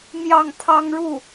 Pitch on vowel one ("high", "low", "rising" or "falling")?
falling